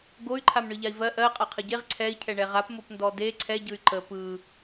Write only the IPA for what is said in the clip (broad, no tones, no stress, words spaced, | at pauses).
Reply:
ɡoy̯ǃʰam ɳɯʎai̯vɜ ʔɜ qʼaqʰəɟeʁ ǀʰɛi̯cʰɛ ɳɛʁap mopndɔde ǀʰɛɟɯy̯ ǃə pɯ